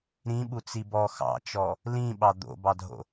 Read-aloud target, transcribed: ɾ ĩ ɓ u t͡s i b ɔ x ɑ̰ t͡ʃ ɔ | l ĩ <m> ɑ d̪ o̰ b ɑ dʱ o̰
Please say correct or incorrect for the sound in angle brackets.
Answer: incorrect